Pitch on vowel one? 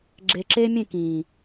low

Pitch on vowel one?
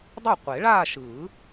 falling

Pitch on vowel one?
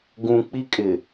low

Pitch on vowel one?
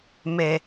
low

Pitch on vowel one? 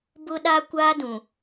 high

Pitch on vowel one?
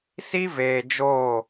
high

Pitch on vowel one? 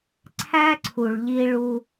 high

